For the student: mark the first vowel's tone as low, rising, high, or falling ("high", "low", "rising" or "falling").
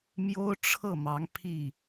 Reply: high